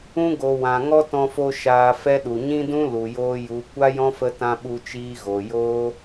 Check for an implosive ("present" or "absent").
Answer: present